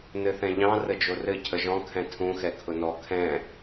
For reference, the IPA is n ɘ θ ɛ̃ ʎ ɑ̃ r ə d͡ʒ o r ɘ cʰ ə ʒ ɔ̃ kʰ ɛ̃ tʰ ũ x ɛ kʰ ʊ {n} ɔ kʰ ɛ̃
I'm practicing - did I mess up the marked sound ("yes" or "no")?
no